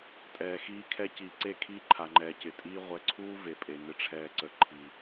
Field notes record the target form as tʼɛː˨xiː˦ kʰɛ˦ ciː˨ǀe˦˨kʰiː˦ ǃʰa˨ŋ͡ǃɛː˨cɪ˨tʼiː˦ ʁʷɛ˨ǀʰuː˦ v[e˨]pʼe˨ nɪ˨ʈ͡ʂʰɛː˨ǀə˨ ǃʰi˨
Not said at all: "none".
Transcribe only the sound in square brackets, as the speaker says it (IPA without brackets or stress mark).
e˨